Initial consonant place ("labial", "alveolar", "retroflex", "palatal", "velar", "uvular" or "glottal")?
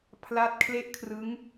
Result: labial